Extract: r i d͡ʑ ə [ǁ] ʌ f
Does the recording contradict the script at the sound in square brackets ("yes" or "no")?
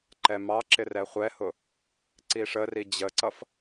yes